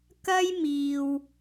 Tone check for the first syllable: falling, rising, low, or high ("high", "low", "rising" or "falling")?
high